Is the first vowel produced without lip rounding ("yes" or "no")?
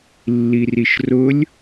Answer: yes